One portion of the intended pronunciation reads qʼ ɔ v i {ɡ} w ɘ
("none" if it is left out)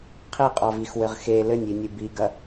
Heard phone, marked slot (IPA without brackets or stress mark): x